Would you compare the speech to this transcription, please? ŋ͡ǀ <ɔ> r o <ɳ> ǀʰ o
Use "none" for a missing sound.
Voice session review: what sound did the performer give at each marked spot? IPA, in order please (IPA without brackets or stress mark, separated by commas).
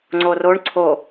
o, ɳ